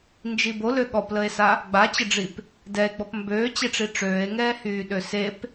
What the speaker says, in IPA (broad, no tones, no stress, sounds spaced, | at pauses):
n d͡ʒ i b o l ø ɠ ɔ p l ə e̯ s a | ɡ͡b a t͡ɕ ə ɖ͡ʐ i p | d ɛ e̯ ɡ͡b ɔ p m b øː t͡ɕ e ʈ͡ʂ i ʈ͡ʂ øː e̯ ŋ ɛː h yː ɗ ø s e p